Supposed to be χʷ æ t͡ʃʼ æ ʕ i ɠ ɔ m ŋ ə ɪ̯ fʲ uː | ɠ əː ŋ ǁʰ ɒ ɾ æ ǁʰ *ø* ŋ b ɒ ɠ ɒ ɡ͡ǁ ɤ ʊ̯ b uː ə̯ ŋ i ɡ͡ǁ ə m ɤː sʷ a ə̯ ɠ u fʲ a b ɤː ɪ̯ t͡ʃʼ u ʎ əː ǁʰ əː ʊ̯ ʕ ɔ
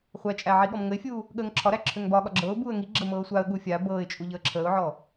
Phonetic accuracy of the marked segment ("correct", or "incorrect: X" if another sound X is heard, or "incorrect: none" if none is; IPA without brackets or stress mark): correct